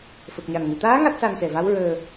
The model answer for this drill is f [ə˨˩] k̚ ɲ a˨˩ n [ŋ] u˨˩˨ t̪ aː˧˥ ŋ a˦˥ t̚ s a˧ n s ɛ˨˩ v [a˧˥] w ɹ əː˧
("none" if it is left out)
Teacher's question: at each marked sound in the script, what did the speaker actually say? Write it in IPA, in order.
ə˨˩, ŋ, a˧˥

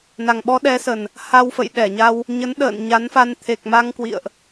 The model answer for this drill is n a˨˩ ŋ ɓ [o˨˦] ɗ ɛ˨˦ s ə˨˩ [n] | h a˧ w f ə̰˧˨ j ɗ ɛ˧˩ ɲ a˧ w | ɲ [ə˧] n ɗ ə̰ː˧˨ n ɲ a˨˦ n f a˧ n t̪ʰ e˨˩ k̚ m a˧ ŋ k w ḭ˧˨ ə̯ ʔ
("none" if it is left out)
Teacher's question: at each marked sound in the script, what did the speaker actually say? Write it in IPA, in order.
ɔ˨˦, n, ə˨˦

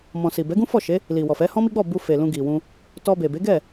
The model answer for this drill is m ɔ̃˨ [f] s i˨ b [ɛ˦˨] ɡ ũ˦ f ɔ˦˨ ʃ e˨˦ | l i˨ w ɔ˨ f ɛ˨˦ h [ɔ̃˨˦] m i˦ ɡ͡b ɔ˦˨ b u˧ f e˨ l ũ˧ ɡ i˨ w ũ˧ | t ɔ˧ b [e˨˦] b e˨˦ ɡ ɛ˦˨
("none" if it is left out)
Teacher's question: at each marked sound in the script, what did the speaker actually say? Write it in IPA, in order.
none, ɛ˨˦, ɔ̃˦, e˨

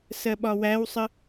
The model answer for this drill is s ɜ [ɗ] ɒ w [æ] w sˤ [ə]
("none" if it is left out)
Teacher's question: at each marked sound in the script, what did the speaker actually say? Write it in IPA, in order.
ɓ, æ, ə

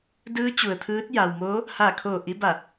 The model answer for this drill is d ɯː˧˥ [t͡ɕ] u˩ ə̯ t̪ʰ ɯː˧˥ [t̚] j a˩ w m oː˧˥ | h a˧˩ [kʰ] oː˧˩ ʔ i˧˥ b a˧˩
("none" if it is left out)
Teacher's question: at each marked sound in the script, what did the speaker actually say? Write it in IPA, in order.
t͡ɕ, t̚, kʰ

